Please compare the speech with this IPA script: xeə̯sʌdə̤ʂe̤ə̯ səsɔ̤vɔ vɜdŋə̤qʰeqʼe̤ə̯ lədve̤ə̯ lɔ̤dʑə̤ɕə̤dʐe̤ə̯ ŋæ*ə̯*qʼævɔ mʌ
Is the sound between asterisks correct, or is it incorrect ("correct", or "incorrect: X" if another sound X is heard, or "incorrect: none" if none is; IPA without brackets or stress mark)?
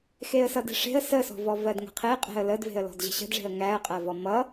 correct